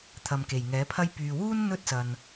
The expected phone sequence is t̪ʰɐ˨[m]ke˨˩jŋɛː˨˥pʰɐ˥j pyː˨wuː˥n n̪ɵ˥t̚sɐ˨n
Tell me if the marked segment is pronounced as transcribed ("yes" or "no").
yes